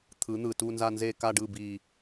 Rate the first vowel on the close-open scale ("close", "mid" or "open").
close